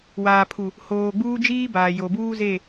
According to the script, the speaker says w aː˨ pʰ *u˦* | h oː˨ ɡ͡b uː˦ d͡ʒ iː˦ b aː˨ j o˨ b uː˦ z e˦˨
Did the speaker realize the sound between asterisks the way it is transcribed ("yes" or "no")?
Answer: no